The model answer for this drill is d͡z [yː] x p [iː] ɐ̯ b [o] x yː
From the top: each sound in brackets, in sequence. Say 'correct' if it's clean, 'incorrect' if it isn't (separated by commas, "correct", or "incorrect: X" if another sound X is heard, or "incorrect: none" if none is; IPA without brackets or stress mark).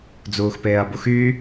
incorrect: uː, incorrect: eː, incorrect: u